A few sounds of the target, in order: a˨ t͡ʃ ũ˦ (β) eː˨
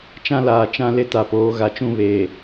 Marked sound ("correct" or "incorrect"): correct